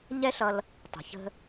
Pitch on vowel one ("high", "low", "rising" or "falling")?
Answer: high